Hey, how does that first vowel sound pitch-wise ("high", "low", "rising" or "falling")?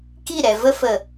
falling